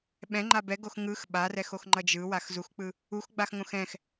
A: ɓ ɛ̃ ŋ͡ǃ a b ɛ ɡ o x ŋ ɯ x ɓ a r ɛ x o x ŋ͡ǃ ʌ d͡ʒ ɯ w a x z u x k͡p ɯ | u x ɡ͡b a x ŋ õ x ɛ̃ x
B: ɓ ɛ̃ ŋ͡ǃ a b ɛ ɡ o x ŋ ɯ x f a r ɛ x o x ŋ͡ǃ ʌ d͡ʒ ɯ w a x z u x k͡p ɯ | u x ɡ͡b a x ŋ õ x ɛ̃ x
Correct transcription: A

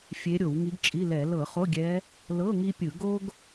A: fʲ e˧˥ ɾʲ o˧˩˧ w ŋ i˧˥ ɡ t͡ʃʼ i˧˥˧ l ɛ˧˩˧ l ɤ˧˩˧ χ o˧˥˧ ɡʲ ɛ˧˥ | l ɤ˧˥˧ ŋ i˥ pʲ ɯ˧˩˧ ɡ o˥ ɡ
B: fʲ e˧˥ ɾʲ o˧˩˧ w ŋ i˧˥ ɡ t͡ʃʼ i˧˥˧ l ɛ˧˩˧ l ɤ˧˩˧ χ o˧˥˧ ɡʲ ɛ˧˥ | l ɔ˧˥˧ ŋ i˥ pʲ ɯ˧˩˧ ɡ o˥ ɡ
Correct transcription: A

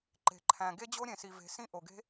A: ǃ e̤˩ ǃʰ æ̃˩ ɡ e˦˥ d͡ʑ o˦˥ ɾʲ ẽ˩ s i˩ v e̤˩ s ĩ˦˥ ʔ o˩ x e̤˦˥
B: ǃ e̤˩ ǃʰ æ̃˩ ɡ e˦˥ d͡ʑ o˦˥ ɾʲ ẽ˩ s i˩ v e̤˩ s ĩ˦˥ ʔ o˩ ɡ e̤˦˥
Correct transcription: B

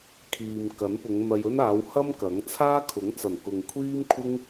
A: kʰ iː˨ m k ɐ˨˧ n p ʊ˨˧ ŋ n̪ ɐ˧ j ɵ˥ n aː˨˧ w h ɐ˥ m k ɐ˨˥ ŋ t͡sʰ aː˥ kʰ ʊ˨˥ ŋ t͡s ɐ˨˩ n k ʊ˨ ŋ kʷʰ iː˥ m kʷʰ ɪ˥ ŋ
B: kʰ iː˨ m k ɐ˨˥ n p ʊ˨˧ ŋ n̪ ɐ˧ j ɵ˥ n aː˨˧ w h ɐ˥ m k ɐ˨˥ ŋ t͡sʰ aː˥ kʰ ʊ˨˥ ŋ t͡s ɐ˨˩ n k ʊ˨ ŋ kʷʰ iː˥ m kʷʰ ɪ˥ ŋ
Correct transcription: B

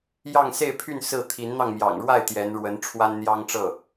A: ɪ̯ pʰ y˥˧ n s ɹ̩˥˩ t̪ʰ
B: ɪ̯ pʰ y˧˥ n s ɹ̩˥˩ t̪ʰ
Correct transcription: A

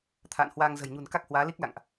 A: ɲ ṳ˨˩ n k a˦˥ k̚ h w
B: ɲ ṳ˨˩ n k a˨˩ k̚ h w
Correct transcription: A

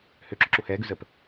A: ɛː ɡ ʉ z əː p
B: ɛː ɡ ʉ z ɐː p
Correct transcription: A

